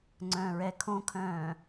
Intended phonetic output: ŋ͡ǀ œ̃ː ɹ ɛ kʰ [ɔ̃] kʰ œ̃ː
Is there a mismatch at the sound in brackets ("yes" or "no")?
yes